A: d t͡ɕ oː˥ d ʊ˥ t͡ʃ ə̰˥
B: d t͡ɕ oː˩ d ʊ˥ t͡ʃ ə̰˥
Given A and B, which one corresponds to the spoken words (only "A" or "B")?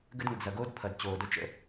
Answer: B